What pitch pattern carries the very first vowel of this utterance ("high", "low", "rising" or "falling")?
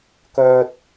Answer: high